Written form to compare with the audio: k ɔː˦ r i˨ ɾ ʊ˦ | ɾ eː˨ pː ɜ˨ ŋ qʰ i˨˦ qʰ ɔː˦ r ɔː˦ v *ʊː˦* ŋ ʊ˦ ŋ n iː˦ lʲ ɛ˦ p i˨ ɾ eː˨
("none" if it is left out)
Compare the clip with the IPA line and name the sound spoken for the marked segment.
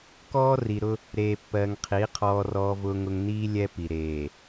ʊː˦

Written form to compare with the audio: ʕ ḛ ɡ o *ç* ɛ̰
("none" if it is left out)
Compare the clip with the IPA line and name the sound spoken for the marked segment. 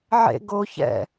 ç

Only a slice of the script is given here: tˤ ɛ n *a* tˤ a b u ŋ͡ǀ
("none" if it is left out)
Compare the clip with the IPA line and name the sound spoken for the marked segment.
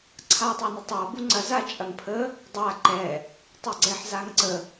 ə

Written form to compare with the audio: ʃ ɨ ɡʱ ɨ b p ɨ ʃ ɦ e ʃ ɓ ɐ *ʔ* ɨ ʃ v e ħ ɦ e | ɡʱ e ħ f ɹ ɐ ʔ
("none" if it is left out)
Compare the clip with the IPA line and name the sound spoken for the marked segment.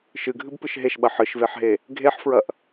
ħ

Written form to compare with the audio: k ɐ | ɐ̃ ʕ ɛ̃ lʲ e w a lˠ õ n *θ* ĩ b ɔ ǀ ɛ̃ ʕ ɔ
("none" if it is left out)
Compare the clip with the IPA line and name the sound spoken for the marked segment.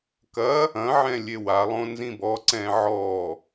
z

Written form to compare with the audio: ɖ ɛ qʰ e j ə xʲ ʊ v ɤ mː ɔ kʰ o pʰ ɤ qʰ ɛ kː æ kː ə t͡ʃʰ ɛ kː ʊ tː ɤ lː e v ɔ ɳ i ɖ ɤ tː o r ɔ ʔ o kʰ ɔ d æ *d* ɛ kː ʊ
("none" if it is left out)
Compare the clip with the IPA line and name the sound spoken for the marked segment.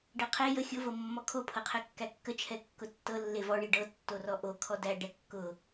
ɖ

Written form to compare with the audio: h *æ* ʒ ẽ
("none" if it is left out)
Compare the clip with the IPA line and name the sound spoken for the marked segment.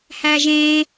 æ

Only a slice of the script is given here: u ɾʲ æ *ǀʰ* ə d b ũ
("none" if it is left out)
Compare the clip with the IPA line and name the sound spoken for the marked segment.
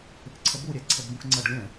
ǀʰ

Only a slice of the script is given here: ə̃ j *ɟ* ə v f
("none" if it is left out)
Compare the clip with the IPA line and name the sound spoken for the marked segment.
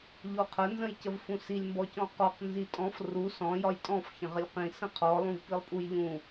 c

